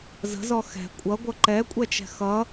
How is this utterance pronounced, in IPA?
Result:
zə̤zɔ xɛ̤ kʷʼʌɡʷʌ ǃɛkʷʼɛt͡ʃɛ̤ xʌ

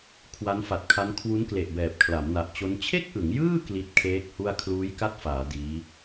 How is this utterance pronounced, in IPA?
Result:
kʰwa˦˥nfa˨˩t̚kʰa˦˥n kʰwu˦˥nkle˨˩ʔbɛː˨˩p̚ kʰla˩˦mna˨˩ʔt͡ɕo˦˥n t͡ɕʰe˥˩k̚ʔɯ˩˦ŋjɯː˥˩ kli˦˥t̚kʰeː˦˥k̚hu˥˩a̯ kʰluː˦˥jka˥˩t̚faː˩˦ diː˦˥

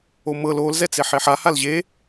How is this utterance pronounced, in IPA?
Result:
omɤl ol zɛt͡seħeħa halʑe

